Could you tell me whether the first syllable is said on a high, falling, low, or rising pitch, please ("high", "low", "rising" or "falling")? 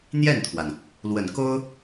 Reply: falling